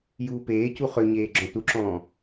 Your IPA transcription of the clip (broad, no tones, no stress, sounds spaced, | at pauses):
j uː p eː c u χ ø ɲ eː ɡ͡ǁ ɔ̃ t u ǁ ɔ̃ː